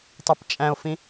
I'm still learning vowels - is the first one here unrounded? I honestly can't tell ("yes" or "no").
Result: no